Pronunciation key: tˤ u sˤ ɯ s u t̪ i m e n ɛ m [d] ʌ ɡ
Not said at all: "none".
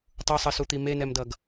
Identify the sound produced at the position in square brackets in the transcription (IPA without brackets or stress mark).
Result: d